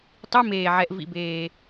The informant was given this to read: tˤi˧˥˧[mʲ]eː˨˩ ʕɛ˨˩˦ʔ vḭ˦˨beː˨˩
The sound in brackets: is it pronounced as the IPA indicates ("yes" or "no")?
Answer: no